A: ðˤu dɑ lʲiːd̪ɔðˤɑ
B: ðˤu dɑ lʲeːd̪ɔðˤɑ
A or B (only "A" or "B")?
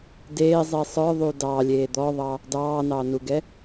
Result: B